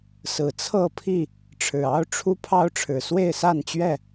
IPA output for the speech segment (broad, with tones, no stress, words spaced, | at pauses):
sɹ̩˨˩t͡sʰɤ˥˨pʰi˥˨ | ʈ͡ʂʰɻ̩˨˩ɑ˦ʊ̯ʈ͡ʂʰu˦ pʰɑ˦ʊ̯ʈ͡ʂʰɻ̩˨˩ swe˥˨ɪ̯sa˥˨nt͡ɕɥɛ˥˨